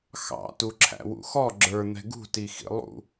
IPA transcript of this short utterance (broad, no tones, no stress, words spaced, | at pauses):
xɑ̰ tuǁʰæ̰wṵxɔ ɡ͡ǁə˞ n̪ɛ̤ɡṳtixḭ lˠṵ